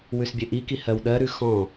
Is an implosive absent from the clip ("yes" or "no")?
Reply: no